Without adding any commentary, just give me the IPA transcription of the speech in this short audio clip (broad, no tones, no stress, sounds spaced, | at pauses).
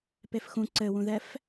p e f x ũ ǀ ɘ w ũ ð ɛ f